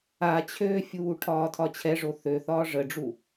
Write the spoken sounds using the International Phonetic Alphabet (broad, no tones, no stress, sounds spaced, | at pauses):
a t͡ɕʰ ø fʲ uː ʈʰ ɒː tʰ ɒ t͡ɕʰ ɛ ʐ o θ ø θ ɒː ʐ ə ɖ͡ʐ u